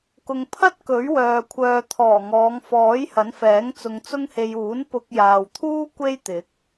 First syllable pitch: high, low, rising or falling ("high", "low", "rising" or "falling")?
low